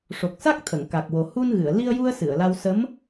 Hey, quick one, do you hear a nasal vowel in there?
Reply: no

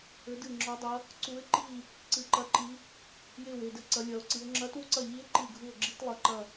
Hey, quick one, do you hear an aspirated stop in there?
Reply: no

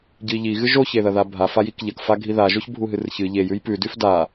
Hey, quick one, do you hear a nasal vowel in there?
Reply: no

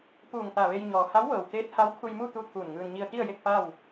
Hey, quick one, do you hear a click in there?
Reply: no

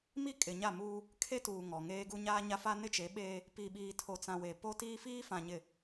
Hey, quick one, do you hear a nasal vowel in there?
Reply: yes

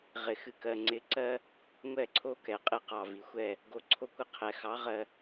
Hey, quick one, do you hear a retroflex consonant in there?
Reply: no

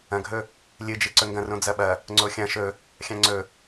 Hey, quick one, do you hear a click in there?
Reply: yes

